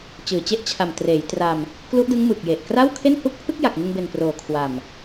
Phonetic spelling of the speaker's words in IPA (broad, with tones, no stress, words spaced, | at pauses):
t͡ɕɯː˨˩t͡ɕe˦˥ʔt͡ɕʰa˨˩m treː˩˦jtra˧m | klu˦˥ʔdɯ˦˥ŋ mɯ˨˩k̚je˨˩ʔ kra˥˩wkʰe˥˩nhu˦˥k̚ pʰɯ˥˩k̚ja˨˩k̚ŋɯ˧ŋbe˨˩n proː˨˩kʰwa˨˩m